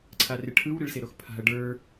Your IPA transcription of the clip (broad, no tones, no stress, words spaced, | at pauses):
ǀʰarɪʈʰɯw ɾɪɭseɾoxpʰa̤ɐ̯ ɖə˞